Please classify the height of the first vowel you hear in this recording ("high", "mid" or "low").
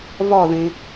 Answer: low